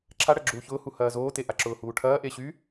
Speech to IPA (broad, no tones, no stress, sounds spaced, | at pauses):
ǁʰ a ɽ ɐ ɡ͡ǁ uː ç ʊː h u h ɐː z oː t e ʔ a ǁ ʊː h uː ʈʰ ɐː ʔ e ɕ y